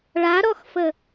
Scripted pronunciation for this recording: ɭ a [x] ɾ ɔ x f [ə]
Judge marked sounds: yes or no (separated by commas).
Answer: no, yes